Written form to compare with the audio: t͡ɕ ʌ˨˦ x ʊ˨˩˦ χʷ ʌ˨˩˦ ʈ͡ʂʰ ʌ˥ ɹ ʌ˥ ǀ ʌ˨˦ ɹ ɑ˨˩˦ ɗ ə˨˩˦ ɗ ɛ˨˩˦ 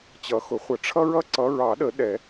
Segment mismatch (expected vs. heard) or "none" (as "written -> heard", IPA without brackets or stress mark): none